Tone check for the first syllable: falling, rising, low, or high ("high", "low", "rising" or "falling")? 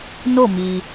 falling